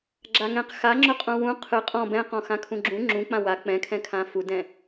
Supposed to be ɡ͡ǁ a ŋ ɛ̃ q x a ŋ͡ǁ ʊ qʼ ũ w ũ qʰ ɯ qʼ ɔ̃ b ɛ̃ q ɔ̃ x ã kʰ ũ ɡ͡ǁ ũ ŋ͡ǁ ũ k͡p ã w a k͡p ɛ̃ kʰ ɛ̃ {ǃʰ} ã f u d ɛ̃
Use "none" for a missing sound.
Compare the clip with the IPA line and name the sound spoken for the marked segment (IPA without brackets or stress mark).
kʰ